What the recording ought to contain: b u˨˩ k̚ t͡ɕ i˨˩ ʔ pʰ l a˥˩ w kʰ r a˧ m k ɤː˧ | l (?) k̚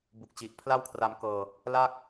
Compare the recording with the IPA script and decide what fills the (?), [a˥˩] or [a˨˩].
a˥˩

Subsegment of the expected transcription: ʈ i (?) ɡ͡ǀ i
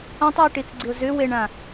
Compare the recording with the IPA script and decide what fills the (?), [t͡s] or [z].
t͡s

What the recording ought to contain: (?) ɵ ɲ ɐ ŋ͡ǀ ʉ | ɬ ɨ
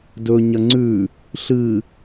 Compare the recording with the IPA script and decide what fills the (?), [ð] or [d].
d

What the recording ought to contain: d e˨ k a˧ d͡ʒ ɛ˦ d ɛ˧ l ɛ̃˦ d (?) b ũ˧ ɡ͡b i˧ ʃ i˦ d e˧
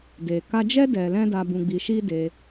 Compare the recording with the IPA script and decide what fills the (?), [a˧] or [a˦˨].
a˧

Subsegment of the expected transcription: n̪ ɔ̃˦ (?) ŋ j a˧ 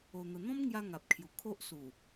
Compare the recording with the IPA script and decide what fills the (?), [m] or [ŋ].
m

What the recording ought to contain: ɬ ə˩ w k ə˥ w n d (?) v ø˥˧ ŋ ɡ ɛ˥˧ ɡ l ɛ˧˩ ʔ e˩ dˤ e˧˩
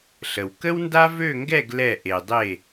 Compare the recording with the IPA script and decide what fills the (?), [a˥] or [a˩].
a˥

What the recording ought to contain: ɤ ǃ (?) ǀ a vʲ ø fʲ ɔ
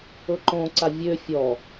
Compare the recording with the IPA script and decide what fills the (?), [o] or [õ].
õ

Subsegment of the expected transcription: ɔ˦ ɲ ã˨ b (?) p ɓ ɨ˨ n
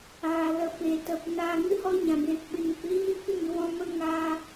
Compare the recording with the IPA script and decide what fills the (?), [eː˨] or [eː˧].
eː˨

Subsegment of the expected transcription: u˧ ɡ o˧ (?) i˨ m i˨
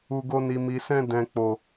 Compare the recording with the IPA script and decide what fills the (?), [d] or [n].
n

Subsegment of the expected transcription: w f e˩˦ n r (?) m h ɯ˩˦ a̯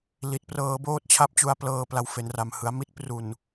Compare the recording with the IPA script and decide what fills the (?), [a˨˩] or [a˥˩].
a˨˩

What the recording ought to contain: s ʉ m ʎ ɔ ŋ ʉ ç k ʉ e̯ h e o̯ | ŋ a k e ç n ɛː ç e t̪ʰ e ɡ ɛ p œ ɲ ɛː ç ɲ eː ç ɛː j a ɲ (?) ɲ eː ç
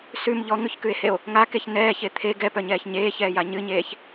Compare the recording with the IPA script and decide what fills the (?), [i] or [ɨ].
ɨ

